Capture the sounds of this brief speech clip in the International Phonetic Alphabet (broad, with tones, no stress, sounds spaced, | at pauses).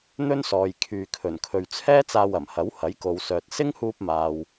n̪ ɵ˥ n s ɔː˨ j kʰ yː˨ kʰ ɵ˨˩ n kʰ ɵ˨ ɥ t͡sʰ ɛː˥ t͡s aː˧ w ɐ˨˩ m h ɐ˨˥ w h ɐ˨˥ j k o˨ w s œː˨ t̚ s ɪ˥ ŋ h uː˧ p̚ m aː˨ w